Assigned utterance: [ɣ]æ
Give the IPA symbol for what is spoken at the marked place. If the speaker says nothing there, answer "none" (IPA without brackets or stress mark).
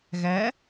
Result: ɣ